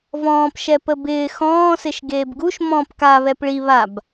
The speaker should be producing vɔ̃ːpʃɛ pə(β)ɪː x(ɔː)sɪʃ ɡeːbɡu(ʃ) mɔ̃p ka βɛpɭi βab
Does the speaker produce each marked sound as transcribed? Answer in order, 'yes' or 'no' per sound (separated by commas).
no, no, yes